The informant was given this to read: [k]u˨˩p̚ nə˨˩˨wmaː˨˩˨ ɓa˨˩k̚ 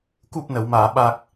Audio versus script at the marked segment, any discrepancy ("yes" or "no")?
no